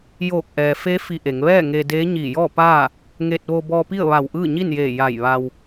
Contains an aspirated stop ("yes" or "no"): no